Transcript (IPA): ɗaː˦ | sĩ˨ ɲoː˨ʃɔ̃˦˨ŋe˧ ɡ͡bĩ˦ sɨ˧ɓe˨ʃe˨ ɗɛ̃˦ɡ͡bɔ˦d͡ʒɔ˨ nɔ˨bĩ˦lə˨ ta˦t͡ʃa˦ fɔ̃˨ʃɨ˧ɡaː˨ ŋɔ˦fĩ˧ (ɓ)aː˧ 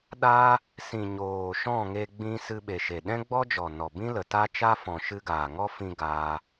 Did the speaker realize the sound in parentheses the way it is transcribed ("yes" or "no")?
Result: no